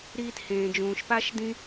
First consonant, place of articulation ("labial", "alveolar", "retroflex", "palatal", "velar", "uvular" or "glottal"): alveolar